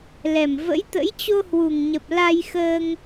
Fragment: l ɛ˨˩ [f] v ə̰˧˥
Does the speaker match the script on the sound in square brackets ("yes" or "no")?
no